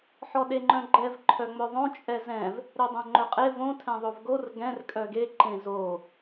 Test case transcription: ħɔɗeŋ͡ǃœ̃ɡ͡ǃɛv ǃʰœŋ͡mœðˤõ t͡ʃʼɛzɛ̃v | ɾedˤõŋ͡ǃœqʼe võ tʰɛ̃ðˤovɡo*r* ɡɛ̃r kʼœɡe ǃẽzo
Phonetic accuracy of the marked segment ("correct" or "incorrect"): correct